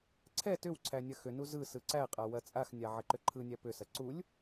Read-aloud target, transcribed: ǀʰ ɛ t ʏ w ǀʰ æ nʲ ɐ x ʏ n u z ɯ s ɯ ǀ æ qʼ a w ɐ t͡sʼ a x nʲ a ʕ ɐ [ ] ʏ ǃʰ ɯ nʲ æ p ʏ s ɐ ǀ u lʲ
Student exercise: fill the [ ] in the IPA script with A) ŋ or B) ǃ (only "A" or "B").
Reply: B